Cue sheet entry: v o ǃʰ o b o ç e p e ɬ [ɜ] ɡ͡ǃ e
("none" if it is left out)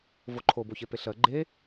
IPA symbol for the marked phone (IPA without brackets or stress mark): ɜ